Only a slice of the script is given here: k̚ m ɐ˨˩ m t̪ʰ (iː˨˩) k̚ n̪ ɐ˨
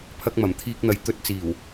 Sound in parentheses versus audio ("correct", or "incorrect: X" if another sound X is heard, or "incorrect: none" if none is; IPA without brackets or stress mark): incorrect: iː˧